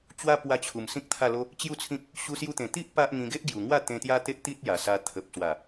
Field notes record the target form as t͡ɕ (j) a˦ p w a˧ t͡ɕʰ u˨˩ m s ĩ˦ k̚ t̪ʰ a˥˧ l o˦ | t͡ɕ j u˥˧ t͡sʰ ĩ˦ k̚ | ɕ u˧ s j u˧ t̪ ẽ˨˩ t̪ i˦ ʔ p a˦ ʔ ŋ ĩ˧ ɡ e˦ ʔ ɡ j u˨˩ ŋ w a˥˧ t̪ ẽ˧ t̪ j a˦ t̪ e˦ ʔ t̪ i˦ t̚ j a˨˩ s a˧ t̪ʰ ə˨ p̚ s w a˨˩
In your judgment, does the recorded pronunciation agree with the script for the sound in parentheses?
no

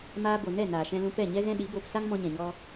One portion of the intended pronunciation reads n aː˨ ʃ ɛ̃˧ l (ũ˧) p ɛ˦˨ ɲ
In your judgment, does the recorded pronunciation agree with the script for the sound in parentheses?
yes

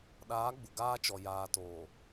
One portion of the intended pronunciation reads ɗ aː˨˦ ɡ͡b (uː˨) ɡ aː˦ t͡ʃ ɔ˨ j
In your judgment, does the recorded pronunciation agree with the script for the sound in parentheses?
no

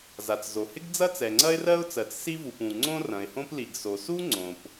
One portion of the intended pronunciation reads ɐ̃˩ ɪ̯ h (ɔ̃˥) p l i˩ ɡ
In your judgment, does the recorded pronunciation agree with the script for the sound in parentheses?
no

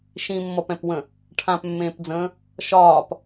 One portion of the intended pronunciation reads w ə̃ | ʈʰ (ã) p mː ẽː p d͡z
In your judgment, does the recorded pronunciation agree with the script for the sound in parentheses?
yes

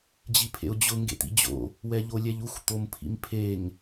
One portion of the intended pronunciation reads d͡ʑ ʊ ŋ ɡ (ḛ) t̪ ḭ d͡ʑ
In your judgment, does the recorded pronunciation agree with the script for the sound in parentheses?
yes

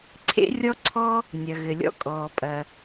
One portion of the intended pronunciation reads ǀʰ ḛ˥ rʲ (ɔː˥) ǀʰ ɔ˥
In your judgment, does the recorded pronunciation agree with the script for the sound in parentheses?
no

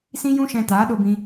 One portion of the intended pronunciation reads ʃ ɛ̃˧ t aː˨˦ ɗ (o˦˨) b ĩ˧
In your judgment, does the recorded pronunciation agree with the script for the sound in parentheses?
no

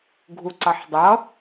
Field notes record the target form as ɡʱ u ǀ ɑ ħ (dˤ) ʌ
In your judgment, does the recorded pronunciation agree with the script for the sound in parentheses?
yes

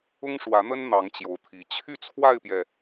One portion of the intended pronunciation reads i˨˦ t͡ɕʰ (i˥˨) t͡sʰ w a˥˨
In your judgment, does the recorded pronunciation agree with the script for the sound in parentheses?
no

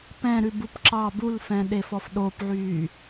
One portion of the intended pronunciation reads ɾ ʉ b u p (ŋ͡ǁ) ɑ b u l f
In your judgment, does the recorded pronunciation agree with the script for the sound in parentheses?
no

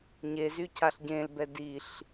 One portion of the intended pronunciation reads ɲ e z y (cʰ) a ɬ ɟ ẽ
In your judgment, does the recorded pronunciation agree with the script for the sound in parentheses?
yes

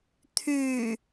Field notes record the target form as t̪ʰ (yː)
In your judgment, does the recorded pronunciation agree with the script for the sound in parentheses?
yes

